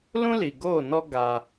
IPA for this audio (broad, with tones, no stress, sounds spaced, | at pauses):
l ũ˦ l i˨ ɡ oː˦˨ n ɔ˦ ɡ a˦